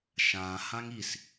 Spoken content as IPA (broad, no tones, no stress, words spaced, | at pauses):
ʃã hãŋis